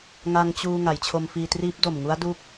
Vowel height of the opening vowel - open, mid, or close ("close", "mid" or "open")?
open